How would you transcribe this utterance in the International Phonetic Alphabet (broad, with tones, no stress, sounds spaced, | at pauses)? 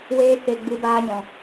w eː˦ k e˧ ɡ͡b ɨ˧ b aː˧ ɲ ɔ̃˨